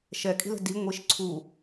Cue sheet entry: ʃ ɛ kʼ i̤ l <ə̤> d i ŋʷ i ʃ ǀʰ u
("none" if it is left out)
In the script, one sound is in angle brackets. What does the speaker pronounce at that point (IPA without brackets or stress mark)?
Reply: ə̤